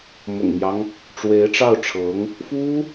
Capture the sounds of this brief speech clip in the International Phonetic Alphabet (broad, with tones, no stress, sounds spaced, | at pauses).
m ʊ̰˨˩ ŋ m j ɑ˦ ŋ | ʈ͡ʂ w e˧˥ ɪ̯ ʈ͡ʂ ɑ˥˩ ʊ̯ ʈ͡ʂʰ ɤ˧˥ ŋ | f u˥